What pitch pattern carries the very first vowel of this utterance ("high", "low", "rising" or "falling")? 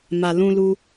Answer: low